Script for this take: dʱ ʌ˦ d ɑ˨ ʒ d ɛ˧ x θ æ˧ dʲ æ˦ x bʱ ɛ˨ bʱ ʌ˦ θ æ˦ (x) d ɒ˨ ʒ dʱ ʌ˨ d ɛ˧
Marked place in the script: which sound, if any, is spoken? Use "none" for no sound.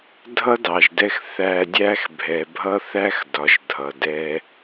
x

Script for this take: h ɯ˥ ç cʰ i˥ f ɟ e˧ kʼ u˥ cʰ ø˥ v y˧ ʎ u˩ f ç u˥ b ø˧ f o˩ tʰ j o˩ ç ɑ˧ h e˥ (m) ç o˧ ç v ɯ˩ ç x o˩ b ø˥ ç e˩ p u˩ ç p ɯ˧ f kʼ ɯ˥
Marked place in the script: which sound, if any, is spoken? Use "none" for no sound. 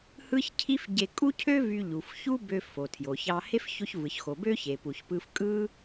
f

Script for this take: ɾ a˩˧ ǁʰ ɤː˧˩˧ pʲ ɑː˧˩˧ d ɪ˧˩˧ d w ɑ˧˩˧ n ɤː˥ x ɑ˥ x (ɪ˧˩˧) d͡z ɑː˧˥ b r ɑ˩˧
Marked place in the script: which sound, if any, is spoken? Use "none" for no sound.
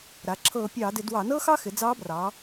ɪ˩˧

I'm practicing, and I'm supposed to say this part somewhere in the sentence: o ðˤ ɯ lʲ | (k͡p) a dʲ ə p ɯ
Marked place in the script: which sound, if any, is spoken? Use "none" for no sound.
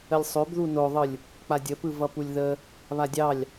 k͡p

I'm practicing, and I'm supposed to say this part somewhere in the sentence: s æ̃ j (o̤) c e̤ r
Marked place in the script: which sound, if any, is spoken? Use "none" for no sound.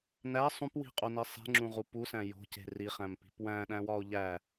o̤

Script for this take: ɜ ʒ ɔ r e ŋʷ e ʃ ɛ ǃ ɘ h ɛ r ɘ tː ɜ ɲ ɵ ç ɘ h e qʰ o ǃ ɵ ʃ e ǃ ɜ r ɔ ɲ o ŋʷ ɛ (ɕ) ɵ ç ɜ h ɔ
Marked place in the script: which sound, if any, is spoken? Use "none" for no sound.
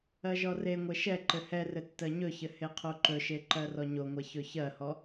ç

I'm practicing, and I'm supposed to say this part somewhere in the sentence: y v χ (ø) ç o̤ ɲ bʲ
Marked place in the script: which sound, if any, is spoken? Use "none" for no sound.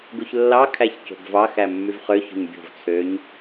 ø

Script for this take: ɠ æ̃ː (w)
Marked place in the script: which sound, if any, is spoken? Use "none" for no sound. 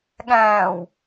w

